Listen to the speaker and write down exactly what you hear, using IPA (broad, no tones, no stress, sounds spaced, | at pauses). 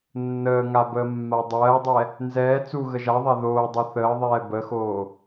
nː əː ŋ a b əː mː a dˤ ɜː dˤ ɛ | n z ɛː t͡s u ɣ ə ʒ a ðˤ a ð oː dˤ o θ əː ðˤ ɛː b ə x oː